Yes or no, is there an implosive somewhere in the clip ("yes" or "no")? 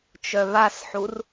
no